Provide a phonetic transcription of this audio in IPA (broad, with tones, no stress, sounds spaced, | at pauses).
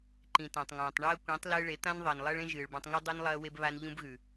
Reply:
ǃ ĩ˨ t ã˨ tˤ ŋ ãː˨ tˤ ɳ ɐː˦ kʷ ĩː˨˦ tˤ l ɨː˧ ɭ e˨˦ t̪ ã˦ n ðˤ ɐː˨ n lˠ ɐː˦ ɭ ẽ˦ ʒ ɨː˨ ɭ b ã˧ tˤ ŋ u˦ dˤ u˦ n lˠ ɐː˦ w e˦ b β a˦ n ʎ ũ˦ b ɣ ʉ˨